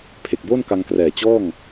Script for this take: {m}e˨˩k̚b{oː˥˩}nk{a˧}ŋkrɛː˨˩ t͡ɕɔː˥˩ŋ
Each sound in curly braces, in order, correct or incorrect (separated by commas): incorrect, correct, correct